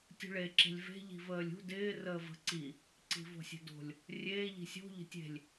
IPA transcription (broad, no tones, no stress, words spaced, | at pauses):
tʲṳɭe ǁe̤lʲve̤ ʎi̤vəːlʲṳ dɪː rəːvə̤ ǀi | ǀi̤v o̤sʲe̤do̤lʲ | rʲeː ʎi̤sʲo̤ ʎə̤tʲe̤lʲ